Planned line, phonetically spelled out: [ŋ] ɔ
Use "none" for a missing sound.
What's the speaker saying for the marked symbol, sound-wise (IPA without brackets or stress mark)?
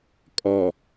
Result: kʼ